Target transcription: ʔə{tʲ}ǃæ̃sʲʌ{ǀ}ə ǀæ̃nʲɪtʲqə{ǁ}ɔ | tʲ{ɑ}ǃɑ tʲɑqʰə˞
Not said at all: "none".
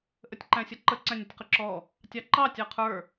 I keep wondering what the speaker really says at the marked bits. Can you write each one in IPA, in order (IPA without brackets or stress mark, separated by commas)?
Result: tʲ, ǃ, ǁ, ɑ